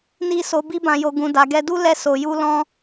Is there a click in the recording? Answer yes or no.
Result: no